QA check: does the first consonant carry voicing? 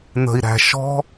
yes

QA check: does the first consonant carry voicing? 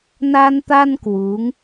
yes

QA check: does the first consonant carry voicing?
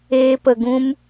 no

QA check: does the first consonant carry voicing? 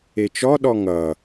no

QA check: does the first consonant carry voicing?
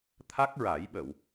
no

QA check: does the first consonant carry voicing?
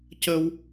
no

